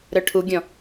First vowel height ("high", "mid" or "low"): mid